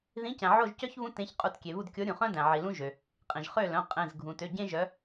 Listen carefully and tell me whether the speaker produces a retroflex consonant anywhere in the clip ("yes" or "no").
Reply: no